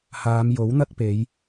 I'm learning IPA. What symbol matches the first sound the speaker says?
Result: h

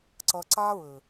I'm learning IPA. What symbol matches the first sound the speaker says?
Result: ǀ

